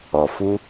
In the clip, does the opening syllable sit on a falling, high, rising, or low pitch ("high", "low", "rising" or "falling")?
low